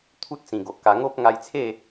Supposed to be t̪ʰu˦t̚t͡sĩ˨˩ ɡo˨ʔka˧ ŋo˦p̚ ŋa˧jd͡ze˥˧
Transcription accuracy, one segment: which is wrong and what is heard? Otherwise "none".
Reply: d͡z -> t͡sʰ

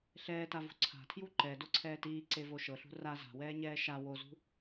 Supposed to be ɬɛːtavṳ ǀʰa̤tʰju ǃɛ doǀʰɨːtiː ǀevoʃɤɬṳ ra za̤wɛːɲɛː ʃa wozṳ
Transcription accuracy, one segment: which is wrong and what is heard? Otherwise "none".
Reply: ɨː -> ɛː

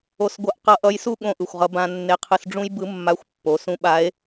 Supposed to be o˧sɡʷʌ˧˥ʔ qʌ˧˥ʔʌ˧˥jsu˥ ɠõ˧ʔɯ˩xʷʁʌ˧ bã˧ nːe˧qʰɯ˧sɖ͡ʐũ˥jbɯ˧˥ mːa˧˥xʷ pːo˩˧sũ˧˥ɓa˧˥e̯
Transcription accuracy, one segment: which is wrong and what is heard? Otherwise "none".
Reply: none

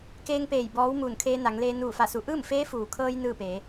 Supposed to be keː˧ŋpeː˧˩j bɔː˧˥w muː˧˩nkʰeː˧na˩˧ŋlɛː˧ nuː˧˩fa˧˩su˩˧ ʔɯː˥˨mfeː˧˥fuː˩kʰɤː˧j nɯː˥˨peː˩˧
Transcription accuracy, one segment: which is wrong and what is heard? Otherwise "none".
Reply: ɛː˧ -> eː˧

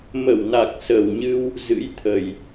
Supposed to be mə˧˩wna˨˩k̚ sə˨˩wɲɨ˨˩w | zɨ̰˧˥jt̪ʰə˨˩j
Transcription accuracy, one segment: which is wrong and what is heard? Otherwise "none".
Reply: ɨ˨˩ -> ɨ˧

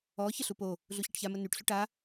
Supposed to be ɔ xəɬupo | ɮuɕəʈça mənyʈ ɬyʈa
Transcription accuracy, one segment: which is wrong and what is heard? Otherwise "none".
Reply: x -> ç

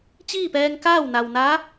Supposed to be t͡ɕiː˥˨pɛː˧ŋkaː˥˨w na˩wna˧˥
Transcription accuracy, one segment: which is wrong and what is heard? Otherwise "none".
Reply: none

